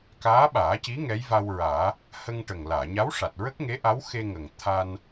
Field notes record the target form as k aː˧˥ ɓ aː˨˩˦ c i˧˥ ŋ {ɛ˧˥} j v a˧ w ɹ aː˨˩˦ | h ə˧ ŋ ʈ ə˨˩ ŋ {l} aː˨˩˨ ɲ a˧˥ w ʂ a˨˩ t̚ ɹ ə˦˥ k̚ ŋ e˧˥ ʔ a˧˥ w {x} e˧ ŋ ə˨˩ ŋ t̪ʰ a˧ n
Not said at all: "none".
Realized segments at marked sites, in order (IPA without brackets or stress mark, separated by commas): ɛ˧˥, l, x